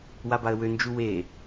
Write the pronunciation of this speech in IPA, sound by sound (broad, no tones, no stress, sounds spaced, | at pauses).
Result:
w a b a ə̯ w ø n d͡ʒ u w e